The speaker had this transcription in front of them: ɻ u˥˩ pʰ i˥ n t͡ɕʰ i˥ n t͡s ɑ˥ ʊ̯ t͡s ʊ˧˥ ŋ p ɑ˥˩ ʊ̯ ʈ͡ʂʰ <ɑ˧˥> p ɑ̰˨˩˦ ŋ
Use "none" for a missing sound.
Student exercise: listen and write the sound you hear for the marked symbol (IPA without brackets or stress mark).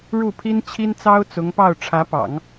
ä˧˥